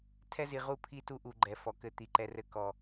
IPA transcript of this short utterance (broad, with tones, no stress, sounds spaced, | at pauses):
tʰ ɛ˦ z i˨ ʁ u˦ pʰ i˦˨ t u˦ ʔ u˨ ɡ͡ǃ ɛ˨ f ɔ˨ k ɘ˦ t̪ i˨ ǃ ɛ˦ r ɘ˦ k ɔ˨